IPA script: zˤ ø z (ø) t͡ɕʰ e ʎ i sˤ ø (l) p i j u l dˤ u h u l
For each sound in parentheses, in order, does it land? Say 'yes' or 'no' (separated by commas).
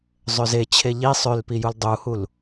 no, yes